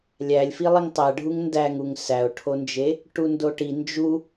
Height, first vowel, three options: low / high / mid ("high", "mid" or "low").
low